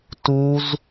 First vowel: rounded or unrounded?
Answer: rounded